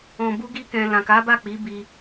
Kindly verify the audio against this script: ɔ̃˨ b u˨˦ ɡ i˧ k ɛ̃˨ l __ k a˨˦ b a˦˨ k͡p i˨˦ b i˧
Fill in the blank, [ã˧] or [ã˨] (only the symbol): ã˨